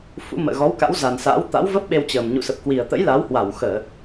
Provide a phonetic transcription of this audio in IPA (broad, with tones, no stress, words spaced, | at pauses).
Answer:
fṵ˧˥ mə̰ː˧˨ɣɔ˨˦wka̰˧˥w za˨˩nsa̰˧˥w t̪a̰˧˥wvə˦˥p̚ɓe˧wt͡ɕəː˨˩m ɲṵ˧˨sə˨˩p̚kwi˨˩ə̯t̪ə̰˧˥j la˨˦whwa˧˩w xəː˧˩˨